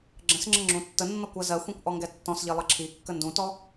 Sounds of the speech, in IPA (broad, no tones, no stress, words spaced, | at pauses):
ɡ͡ǁə̃sŋ͡ǁə ŋ͡ǁũtːənːɔkʷ ɜzɜxʷĩkʷ ʔɔŋɡɛtːɔ̃sʎi lˠəǁʰikːə ndũtɔ